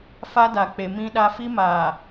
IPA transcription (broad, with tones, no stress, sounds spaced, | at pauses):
f a˦ d a˨ k͡p e˨ m ĩ˦ ɗ a˦ f i˦ m aː˨